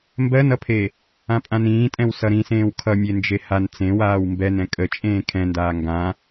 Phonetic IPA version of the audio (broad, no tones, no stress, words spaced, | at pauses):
mbɜnʌpʰe | ãpʼãnĩːtʼɛ̃w sʌɾĩsẽːw kʰʌ mʲend͡ʒehan t͡sẽwaːw mbɛn ɛ̃kʼə t͡ʃʼẽːkʰɛ̃ndaː ŋɡã